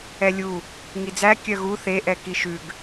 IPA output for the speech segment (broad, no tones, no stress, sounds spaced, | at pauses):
ɛ lʲ u | ŋ i d͡z æ kʲ œ ɣ u θ e ʔ ɛ k i ʃ ʉ ɡ